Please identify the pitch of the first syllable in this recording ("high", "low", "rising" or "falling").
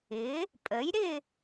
rising